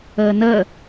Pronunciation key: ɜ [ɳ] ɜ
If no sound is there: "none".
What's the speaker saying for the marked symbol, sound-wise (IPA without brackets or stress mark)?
n